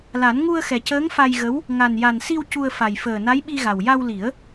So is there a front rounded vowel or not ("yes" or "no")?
no